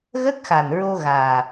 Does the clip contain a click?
no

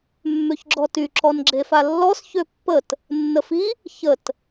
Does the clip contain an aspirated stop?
no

